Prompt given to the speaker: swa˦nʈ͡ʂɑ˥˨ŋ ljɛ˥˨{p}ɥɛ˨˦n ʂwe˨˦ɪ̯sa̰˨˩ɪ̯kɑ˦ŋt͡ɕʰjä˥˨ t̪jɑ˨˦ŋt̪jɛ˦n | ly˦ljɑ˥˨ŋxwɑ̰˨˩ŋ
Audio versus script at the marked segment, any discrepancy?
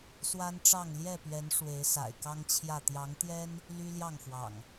no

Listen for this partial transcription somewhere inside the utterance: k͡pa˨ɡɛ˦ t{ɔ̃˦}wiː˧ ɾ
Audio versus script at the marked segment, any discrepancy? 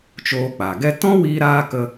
no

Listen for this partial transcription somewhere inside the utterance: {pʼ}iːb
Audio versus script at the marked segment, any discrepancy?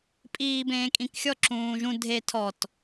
no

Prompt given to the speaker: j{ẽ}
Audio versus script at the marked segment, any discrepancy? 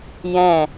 yes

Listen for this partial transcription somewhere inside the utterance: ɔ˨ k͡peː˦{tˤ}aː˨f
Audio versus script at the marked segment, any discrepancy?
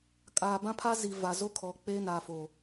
yes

